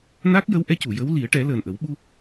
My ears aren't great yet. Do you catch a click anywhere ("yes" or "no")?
no